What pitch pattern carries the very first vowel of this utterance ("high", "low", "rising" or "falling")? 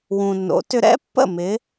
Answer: low